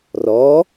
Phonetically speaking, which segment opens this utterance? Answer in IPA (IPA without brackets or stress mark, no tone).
r